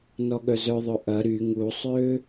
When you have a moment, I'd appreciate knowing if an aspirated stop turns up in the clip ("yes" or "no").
no